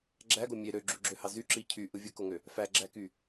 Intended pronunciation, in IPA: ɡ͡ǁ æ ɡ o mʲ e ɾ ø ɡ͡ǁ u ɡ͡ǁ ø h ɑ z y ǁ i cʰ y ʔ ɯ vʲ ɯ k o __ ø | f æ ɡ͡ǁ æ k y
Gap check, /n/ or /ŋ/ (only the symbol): ŋ